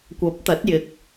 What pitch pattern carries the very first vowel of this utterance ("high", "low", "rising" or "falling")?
rising